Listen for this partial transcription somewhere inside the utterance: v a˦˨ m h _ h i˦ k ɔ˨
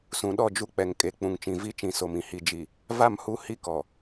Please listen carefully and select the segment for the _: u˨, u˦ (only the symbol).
u˦